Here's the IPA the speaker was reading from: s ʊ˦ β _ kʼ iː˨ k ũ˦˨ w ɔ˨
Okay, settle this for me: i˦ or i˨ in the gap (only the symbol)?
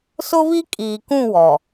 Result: i˦